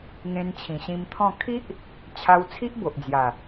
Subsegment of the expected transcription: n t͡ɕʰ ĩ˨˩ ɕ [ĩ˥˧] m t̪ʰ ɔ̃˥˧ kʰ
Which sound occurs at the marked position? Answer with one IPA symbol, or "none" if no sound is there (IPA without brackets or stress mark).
ĩ˧